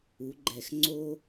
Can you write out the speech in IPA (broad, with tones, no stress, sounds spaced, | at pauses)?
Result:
u˩˧ ɡ͡ǃ ɛ˧˩ x ŋ͡ǀ o˧